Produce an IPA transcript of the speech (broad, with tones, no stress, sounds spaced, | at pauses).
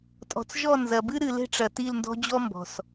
tʼ ɔ̤˨ t͡s ʒ ɔ˦˨ n z ɐ˨ b ɨ˦ ɾ ɨ˨ l e̤˦ ʈ͡ʂ ɐ˨ t i˦˨ l n d ɔ̤˦ d͡ʑ ɔ˦ m b ɔ̤˨ s